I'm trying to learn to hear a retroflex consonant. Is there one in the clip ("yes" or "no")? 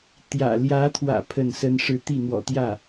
yes